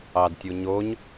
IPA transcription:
ɑdtʲuɲoɲ

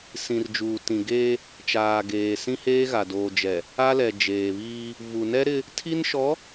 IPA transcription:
sĩ˨rd͡ʒuː˨tĩ˨ɡeː˦ | t͡ʃaː˨ɡeː˨ sĩ˦heː˦ɣa˨ doː˨d͡ʒɛ˨ | a˦lɛ˨ d͡ʒeː˨βiː˦ | vu˨nɛ˦ɾɪ˦ | tʰi˦nʃɔ˨˦

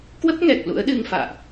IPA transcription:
kwə˦˥p̚ŋɛ˨˩k̚ lṵ˧˥ə̯ɗɨ˧ŋ fa̰ː˧˨ʔ

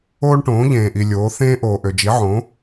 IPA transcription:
oː˥ɳʈõː˩˥ ʎẽː˩ʔi˩ lʲoː˩˥ θẽː˥ ʔoː˩ʔø˩d͡ʒi˩˥ʕõː˩˥

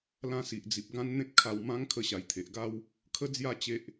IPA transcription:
lã˧si˨ʔd͡zi˨p̚ ɡã˦nn̪ẽ˦t̚kʰa˧w mã˦ŋ kʰə˧ɕa˨˩jt̪ʰe˨ʔɡa˦w | kʰə˦d͡zja˥˧ t͡ɕe˦ʔ

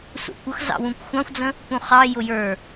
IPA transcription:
sṵkʷʌx zɑ̰wũkʷxʷɑ̃xʷd͡zə̃ | pũχɑ jʊjə˞

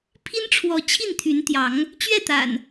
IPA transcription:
pʰi˦nʈ͡ʂʰwɔ˨˦ t͡ɕʰi˥˨nt̪ʰy˨˦nt̪jɑ˨˦ŋ | t͡ɕɥɛ˥˨t̪a̰˨˩n

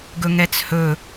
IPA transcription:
ɡɵŋɛt͡shɵ

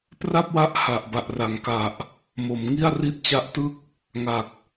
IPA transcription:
pra˥˩p̚wa˦˥ʔ ha˨˩ʔba˨˩ʔ ra˩˦ŋka˨˩ʔ | mo˩˦mŋi˥˩a̯ ri˦˥t̚t͡ɕa˦˥ʔtɯ˥˩k̚ | ŋa˨˩k̚

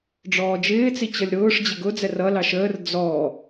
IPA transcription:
ɖ͡ʐɔːd͡ʒɪːt͡si t͡ɕʌlʲɾʊːʂ d͡ʑɪɡʊd͡zɛ rʌ lɑʃəːr d͡zɔ

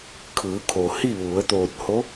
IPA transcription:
kʰɯː˩˧kʰo˩ hi˥˨ ʋu˩˧ə̯ t̪oː˧˩t̚ho˧˥

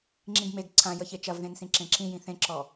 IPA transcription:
ŋ͡ǁĩɡmeɡ ǀʰãjəçe t͡ʃɐvðẽnsĩ ǁẽǁĩjĩ θẽǁɔ

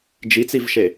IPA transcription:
d͡ʒit͡sivʃe

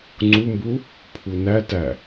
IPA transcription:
ŋ͡ǀumbu | pʰunætæ

